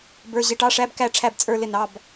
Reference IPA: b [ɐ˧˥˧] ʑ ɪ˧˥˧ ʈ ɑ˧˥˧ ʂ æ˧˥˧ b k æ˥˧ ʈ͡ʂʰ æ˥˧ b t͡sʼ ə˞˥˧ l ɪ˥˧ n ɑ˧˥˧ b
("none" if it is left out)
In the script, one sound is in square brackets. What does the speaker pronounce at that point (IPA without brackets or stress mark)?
ə˞˧˥˧